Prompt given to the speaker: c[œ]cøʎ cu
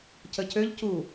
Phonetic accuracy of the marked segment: incorrect: ə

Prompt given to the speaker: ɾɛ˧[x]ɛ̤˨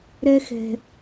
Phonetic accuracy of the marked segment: correct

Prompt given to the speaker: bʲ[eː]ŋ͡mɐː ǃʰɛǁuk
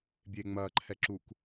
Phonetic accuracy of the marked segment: correct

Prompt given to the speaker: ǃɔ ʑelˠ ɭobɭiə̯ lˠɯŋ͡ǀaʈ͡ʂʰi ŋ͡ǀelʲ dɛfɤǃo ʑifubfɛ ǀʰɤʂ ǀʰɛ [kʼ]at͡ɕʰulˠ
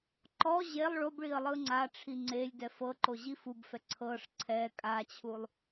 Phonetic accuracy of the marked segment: correct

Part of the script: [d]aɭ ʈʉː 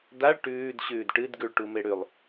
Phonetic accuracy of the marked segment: correct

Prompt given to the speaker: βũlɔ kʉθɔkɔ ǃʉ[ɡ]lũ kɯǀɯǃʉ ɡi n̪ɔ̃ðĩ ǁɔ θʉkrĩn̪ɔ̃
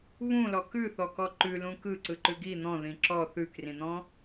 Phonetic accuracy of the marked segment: incorrect: none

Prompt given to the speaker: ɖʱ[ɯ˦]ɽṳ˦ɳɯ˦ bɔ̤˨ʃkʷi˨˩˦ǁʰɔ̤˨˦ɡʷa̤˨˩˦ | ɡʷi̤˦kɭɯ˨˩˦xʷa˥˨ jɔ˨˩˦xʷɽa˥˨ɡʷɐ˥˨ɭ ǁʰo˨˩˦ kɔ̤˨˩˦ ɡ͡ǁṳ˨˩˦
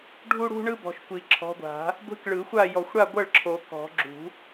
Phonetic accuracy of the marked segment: incorrect: u˦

